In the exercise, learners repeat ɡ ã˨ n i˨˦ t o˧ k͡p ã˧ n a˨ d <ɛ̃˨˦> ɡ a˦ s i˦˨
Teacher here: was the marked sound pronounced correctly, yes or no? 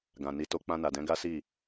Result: yes